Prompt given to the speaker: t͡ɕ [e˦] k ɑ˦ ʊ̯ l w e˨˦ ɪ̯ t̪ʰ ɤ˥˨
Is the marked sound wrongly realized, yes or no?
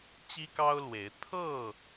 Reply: yes